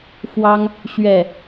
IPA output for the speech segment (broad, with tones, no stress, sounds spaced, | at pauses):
f w ɑ˦ ŋ | ɕ ɥ ɛ˥˨